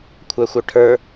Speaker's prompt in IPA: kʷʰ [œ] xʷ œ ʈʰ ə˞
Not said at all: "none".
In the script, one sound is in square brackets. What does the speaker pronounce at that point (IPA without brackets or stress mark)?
œ